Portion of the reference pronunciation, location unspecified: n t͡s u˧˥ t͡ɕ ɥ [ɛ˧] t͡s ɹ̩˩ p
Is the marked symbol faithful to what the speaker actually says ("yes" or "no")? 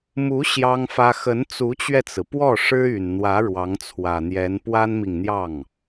yes